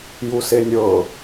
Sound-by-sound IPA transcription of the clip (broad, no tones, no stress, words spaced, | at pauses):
jusenʲɤ